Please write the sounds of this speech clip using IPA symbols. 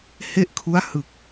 he˥˩ʔkʰu˦˥a̯ hɯ˨˩k̚

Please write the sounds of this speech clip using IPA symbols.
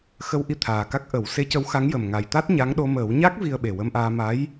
xə˧wʔi˧ t̪ʰaː˨˩ka˦˥k̚ ʔə˨˩˦w se˧˥cə˧˥wxa˧˥ŋjə˨˩m ŋa˨˩jt̪a˦˥t̚ ɲa˧˥ŋɗo˧ məː˨˩˦wɲa˦˥k̚ vi˧ə̯ɓe˨˩wə˧mʔaː˧ ma˧˥j

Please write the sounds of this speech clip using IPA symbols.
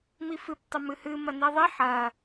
mifɨp tˤɘmɨhɨ mɐniðˤi ħɐ

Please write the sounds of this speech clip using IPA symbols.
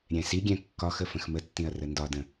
ɾʲɛ̃siɡʲɛ̃ kːɒxə fə̃xmətːĩɐ̯ rəndɒdə̃

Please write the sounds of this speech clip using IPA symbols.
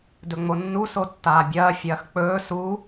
dɵŋ͡monːu sotːaːbʲɐː fʲɐːxk͡pɵː su

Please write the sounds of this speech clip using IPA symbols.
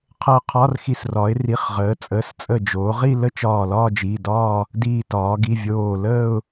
qʰəː˧˩qʰɒ˧˥˧rxi˧˩s rɒ˩˧ɪ̯ri˩˧˩χʁəː˩˧t͡sʼəː˩˧˩s t͡sʼə˧˩d͡ʒoː˩˧ ʁi˥˧lə˥˧ t͡ʃɒː˧˩lɒː˥˧d͡ʒi˩˧˩dɒː˥˧ | diː˧˩tɒː˩˧ɡi˩˧˩vʲoː˧˩ ləː˥˧ʊ̯

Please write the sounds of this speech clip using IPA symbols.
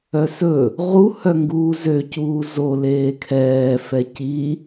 œsɵ | ʁu hœŋɡuːzø cuːzo leːkʰɛː fɛci

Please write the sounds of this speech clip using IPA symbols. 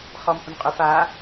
χɔmhʏmqʼɵf a

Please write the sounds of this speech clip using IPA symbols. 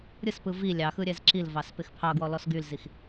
ɾʲɯspɯ vi lʲɑxɯ ɾʲɛzǁilvɑs pɪxpʰɑɡwɔ lɔsɡylzix

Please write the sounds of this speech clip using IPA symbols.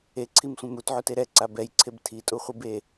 eǀʰimsʷɛ̃m utʕute ɾɛǀa bɛjǀʰeb tʰitʼuχʷib e

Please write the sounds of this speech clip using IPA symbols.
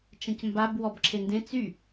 t͡ʃɐ̃cmbab wɔbǁʰendẽ t͡sy

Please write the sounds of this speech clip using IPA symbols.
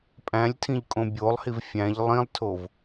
pʼæ̃lʲtʰĩʎ kʼõbʲolˠhiv fʲæ̃ʎ lˠĩlˠtʰov

